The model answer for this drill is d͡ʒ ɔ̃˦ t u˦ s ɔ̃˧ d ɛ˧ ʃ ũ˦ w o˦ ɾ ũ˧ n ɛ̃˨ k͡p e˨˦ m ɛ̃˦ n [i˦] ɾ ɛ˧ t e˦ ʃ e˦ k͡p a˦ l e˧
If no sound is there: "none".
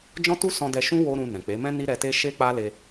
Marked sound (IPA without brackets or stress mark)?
i˦